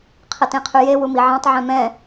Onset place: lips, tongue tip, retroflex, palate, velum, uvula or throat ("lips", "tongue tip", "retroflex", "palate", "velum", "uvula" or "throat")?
uvula